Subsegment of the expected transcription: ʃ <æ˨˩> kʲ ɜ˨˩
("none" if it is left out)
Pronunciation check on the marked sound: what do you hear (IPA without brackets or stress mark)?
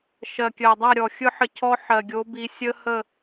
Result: ɜ˨˩